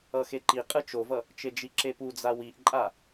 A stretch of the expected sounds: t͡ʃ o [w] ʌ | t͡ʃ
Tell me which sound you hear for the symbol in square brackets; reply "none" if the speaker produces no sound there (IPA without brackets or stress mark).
v